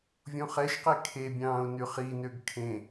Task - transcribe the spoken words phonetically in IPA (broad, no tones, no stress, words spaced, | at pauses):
vʲõχɛʃqe kʰebʲɑ̃ːʊ̯ nyχinøɡ kʰẽ